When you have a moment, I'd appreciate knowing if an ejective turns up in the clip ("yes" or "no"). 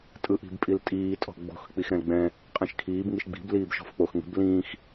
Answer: yes